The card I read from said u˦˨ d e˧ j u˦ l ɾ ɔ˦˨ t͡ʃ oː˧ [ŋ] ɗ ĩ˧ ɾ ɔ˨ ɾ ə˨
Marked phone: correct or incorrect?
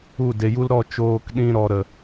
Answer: incorrect